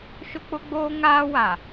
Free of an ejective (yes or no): yes